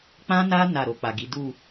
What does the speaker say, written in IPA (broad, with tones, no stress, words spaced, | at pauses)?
k͡pã˦na˦ na˦˨ɾo˧k͡pa˨ɡi˨˦ du˦˨